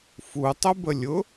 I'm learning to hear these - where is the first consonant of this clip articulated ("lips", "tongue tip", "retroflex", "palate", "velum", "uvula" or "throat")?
lips